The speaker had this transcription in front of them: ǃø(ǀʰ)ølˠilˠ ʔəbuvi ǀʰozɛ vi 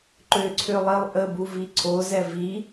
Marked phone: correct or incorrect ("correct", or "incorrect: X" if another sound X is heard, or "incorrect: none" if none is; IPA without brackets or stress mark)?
correct